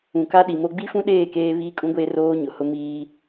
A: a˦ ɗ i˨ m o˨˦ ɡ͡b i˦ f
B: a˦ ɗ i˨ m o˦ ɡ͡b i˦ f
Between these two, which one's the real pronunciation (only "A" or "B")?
B